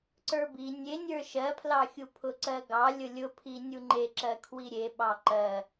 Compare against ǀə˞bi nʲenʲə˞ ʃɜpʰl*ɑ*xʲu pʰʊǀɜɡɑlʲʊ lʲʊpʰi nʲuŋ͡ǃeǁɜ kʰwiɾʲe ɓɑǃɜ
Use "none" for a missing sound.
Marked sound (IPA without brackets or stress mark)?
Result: ɑ